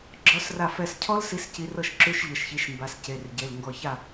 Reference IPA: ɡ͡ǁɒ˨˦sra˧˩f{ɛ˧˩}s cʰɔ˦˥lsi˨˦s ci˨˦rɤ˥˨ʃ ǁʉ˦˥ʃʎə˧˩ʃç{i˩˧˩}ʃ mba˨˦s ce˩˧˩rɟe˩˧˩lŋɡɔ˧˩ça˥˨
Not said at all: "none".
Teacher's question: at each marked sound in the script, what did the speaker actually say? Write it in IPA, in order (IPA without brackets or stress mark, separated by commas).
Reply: ɛ˧˩, i˨˦